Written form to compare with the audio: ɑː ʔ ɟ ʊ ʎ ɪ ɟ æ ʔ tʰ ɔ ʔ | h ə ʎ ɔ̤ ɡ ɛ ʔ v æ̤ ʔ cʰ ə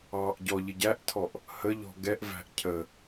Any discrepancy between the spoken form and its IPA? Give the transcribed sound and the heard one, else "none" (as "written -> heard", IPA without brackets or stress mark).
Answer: ʊ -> ɔ